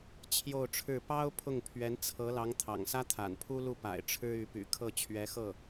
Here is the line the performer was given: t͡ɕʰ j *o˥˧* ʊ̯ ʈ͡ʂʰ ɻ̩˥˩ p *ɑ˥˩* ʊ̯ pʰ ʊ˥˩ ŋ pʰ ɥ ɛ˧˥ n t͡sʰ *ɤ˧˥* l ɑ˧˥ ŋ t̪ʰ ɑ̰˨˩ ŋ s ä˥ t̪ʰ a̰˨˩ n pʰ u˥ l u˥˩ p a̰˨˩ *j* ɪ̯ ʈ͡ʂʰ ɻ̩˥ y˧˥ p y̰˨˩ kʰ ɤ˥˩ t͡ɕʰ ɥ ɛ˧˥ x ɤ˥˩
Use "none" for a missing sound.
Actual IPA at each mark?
o˥˧, ɑ˥, ɤ˧˥, none

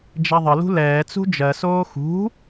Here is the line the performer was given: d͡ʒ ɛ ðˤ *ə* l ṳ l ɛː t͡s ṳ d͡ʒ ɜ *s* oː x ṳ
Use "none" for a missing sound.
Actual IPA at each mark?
ə, s

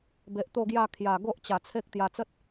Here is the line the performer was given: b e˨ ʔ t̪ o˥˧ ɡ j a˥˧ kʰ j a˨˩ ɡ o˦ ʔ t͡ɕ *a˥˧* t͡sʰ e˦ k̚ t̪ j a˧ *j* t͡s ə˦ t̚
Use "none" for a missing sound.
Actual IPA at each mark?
a˨˩, none

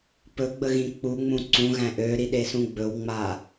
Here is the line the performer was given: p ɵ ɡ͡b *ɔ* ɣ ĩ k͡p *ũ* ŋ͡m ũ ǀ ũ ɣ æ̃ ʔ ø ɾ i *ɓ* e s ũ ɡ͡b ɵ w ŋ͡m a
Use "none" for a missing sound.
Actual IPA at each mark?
ə, u, ɗ

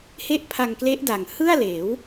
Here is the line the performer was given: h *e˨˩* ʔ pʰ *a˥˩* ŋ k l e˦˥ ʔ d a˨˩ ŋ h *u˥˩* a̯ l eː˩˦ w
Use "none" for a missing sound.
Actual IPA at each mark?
e˥˩, a˧, ɯ˥˩

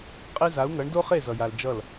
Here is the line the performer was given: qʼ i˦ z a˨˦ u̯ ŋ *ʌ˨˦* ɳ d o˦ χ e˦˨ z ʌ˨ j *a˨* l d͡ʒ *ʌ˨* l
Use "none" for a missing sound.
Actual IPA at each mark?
ʌ˨˦, a˨, ʌ˦˨

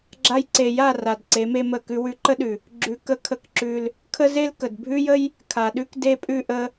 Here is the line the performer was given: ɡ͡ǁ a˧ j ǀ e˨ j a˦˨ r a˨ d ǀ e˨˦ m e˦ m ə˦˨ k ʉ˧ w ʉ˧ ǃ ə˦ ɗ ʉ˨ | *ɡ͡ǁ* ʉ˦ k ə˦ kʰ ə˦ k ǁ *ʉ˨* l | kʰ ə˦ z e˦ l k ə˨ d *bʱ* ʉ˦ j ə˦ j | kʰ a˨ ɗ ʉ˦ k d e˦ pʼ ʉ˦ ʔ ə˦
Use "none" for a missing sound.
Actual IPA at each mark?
ɡ͡ǁ, ʉ˧, bʱ

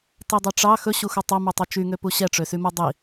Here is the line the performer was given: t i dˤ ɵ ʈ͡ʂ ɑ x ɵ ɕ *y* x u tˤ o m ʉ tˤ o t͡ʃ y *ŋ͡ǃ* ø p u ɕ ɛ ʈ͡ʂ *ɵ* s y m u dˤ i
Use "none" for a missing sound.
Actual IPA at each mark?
u, ŋ, ø

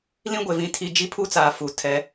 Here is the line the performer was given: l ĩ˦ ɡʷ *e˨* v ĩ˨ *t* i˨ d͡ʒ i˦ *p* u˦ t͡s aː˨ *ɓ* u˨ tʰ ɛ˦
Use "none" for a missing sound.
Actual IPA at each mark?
e˨, tʰ, pʰ, f

